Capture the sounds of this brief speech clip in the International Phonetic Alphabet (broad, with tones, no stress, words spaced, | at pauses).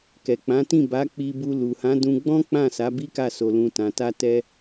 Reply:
kɛ˨k͡pã˨˦tĩ˦˨ ba˨˦k͡pi˧bu˧ lu˨hã˨˦dũ˧ɡ͡bɔ̃˦ k͡pã˦˨sa˨˦ bi˦ka˦˨so˧lũ˧ tã˨ta˧tɛ˧